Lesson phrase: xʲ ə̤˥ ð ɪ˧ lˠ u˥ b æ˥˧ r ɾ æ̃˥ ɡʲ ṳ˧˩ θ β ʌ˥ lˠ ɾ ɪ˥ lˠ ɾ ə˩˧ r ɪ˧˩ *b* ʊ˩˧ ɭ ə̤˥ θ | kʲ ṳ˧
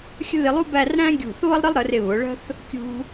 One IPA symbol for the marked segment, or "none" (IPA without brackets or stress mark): β